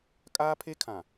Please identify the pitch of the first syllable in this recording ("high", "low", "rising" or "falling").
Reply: high